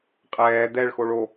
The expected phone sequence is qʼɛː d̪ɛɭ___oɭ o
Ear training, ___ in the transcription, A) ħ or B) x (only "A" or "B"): B